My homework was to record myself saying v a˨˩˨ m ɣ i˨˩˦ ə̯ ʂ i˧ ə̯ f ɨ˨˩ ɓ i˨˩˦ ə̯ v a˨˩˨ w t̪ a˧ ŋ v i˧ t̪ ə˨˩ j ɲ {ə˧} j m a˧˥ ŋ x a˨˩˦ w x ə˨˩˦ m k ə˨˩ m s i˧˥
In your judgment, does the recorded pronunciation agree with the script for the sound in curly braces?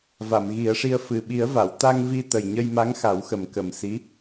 yes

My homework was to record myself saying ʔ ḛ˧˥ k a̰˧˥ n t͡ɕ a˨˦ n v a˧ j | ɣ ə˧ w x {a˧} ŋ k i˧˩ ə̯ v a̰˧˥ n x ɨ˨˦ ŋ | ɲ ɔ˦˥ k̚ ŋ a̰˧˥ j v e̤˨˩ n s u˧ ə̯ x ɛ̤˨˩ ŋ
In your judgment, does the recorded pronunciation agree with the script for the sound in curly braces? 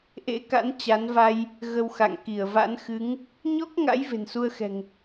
no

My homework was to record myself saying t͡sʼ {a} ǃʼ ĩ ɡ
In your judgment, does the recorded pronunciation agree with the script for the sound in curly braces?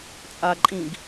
yes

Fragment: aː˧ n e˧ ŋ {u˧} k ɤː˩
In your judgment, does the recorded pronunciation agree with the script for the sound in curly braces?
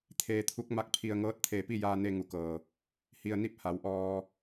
no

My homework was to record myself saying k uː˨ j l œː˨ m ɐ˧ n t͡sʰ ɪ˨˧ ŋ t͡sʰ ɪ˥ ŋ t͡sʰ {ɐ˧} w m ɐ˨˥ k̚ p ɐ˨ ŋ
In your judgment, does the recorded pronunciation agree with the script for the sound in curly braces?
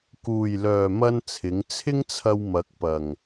yes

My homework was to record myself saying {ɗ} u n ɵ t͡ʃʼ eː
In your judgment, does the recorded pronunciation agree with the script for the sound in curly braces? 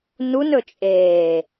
no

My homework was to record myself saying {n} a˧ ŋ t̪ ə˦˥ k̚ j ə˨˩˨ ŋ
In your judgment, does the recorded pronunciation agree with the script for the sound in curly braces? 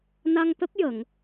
yes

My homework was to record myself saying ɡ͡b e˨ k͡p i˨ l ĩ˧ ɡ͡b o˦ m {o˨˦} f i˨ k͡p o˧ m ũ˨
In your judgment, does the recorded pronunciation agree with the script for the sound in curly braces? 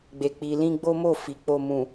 no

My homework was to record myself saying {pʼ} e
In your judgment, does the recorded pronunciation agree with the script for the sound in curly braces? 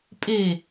yes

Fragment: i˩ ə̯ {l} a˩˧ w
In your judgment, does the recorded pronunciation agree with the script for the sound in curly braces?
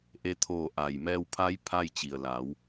yes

